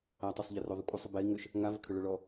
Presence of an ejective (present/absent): present